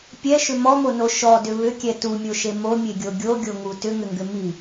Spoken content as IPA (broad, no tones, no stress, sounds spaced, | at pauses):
pʲ ɛ ʃ ʏ m ɔ m o n o ʃ ɔ d ʏ β ʏ kʲ ɛ t u mʲ o ʃ e m o mʲ e ɡʲ o ɡʲ o ɡʲ o ŋ u t ʏ ŋ ʏ ŋ ɡ ʏ m i